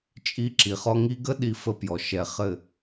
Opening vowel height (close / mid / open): close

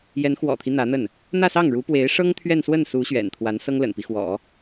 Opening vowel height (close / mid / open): mid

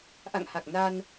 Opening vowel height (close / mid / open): open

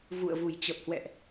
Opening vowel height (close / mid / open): close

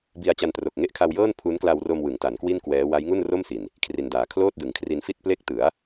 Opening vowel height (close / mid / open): close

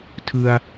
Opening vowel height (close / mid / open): close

